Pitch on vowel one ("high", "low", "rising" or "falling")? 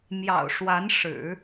low